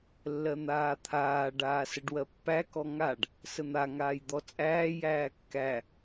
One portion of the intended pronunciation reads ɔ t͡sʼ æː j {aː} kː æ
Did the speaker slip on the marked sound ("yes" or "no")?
yes